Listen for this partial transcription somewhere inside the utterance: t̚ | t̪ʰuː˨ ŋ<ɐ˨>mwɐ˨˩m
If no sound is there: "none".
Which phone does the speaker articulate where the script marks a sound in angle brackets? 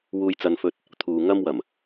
ɐ˧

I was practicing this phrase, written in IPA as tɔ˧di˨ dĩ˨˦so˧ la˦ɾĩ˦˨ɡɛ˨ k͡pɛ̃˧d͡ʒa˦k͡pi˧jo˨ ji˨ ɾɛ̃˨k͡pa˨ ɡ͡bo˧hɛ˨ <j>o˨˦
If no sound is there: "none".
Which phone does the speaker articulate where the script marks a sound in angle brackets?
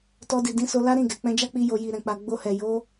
j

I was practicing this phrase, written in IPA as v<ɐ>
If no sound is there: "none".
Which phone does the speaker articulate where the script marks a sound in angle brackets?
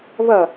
ɐ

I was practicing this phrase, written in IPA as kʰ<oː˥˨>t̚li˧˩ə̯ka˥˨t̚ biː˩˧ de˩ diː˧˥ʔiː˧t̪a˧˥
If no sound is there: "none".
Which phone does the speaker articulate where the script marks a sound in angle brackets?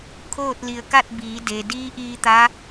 oː˥˨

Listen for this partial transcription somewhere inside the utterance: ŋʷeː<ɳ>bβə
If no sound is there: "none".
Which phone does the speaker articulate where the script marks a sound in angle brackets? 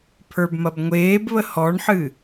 none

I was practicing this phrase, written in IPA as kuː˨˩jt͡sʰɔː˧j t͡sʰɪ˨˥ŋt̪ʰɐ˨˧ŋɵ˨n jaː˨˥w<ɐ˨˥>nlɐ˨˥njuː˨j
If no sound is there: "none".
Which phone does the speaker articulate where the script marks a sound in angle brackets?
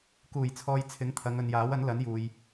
ɐ˨˥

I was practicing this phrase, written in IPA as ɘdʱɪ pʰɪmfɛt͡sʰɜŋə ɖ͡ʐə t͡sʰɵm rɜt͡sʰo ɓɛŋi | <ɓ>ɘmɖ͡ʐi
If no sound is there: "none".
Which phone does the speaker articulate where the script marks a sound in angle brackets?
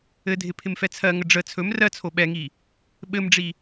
ɓ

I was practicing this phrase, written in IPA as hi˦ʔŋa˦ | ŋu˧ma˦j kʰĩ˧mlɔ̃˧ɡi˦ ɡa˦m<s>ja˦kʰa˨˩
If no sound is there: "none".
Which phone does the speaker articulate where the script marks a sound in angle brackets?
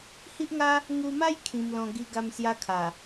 s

